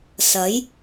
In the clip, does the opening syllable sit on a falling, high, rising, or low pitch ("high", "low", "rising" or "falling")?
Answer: rising